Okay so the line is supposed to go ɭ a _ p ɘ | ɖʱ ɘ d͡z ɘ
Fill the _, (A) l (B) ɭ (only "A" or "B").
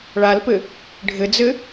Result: A